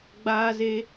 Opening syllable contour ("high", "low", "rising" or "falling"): high